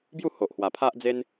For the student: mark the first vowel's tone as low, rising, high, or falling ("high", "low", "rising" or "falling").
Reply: falling